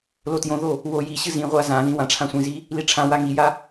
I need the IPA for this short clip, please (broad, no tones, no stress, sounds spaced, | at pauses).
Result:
l o t j õ ð o | w o j i ɕ ɨ z ĩ ʁʷ a z ã ð ĩ w ã ʈ͡ʂʰ ã sʷ ĩ z i | l i ʈ͡ʂʰ ã w a ŋ i j a